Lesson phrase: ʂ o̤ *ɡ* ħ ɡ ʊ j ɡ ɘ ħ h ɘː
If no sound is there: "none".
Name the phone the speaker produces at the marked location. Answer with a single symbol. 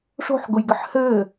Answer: none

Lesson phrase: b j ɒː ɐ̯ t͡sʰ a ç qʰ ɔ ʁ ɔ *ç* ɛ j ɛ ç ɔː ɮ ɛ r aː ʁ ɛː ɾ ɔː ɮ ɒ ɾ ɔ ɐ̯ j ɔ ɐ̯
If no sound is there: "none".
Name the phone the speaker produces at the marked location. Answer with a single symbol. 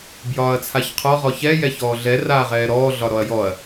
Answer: ç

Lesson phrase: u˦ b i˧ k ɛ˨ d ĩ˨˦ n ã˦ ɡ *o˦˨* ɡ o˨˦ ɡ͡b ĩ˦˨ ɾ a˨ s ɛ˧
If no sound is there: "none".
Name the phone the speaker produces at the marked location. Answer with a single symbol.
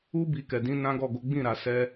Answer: ɔ˦˨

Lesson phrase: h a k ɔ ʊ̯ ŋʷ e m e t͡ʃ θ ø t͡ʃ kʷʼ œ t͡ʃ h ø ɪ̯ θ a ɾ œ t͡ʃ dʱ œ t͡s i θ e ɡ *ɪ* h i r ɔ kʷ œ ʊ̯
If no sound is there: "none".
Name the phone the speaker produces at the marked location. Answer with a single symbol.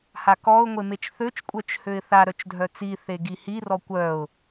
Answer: i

